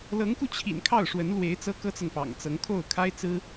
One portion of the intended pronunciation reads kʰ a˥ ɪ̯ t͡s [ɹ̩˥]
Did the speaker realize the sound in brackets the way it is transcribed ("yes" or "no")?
yes